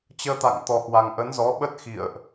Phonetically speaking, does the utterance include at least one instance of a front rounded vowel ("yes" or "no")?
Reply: no